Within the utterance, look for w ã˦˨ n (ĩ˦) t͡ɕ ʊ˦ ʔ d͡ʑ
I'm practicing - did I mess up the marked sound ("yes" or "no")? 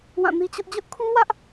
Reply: yes